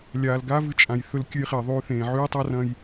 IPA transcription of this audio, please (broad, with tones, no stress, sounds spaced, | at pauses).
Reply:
lʲ aː˨ l ɡ a˦ v ɨ˧ t͡ʃʼ ã˨ j θ ɵ˧ l kʲ ʉ˧ j χ e˨ ðˤ ʉː˧ θ ẽː˨ ʕ ʉː˦ tˤ a˦ r ɐ̃˧ j